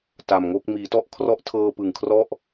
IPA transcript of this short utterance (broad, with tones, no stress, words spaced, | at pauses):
ta˨˩mŋo˥˩k̚ miː˩˦tɔ˥˩ʔkʰrɔ˦˥ʔtʰɤː˧ pɯ˨˩ŋkʰrɔ˥˩ʔ